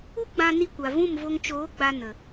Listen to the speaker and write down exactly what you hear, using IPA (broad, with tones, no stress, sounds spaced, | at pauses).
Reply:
u˦ ɡ͡b ã˧ n i˧ kʷ a˨ v ũ˦˨ m v o˧ ŋ t͡ʃ oː˨˦ ɡ͡b a˧ n ə˨